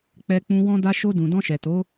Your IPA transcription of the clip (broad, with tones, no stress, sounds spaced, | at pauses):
k͡p ɛ˧ k͡p ũ˧ w ɔ̃˧ d a˧ ʃ o˧ d ũ˨ d ɔ̃˧ ʃ ɛ˨ t o˨˦